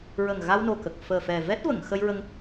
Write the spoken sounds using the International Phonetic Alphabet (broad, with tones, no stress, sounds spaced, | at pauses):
ɹ ə˨˩ ŋ ɣ a˧ w n o˨˩ k ə˨˩ k̚ f əː˨˩ f ɛ˨˩ v ɛ˦˥ t̚ v ə˨˩˨ ŋ x ə˧ j ɹ ə˧ ŋ